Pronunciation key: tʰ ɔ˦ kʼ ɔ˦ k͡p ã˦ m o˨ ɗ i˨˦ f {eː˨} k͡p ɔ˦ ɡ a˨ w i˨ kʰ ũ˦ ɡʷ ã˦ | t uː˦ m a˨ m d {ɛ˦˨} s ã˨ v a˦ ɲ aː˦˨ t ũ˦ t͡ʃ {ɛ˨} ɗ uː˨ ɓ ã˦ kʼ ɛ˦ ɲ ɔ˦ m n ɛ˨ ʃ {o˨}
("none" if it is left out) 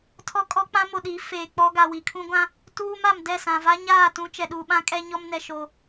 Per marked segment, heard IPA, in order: eː˨, ɛ˦˨, ɛ˨, o˨

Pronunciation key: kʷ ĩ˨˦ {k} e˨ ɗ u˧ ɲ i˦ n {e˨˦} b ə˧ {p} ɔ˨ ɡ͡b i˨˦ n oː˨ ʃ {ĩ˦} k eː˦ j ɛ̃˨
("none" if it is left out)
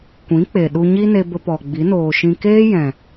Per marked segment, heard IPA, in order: k͡p, e˧, p, ĩ˧

